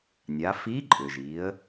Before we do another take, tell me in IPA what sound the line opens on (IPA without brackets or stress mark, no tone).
nʲ